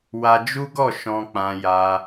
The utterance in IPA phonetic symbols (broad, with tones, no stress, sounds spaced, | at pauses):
w a˧ d͡ʒ u˦ ɡ ɔ˦˨ ʃ ɔ̃˧ k͡p ã˧ j a˧